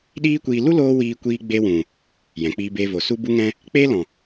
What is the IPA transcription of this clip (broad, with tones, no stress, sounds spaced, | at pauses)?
ɗ iː˦ kʷ iː˧ l u˦ l oː˧ w iː˧ kʷ iː˧ ɡ͡b e˧ w ũ˨ | j ɛ̃˨ k͡p iː˧ b eː˧ v oː˨ s u˦ b u˦ ŋ ɛ̃˦ | k͡p e˦ l ɔ̃˨